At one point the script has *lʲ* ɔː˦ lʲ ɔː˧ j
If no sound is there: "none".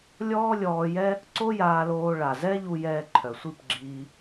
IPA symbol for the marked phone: lʲ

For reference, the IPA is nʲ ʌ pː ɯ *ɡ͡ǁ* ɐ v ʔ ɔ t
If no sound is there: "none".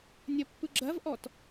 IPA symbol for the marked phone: ɡ͡ǁ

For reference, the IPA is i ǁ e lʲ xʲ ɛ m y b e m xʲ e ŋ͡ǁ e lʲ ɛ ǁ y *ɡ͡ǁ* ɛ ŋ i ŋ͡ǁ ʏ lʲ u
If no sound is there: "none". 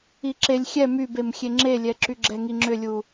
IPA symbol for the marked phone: ɡ͡ǁ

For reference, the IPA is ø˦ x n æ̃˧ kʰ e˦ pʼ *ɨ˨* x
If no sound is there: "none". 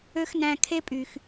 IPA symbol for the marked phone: y˨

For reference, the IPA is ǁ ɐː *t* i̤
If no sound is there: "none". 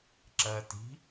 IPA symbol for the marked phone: t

